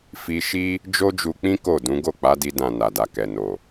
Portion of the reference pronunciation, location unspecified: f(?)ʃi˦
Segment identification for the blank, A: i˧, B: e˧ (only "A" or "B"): A